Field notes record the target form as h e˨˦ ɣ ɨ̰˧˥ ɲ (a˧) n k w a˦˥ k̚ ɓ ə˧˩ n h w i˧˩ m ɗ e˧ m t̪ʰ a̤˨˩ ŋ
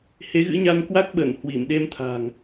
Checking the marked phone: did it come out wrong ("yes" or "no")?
no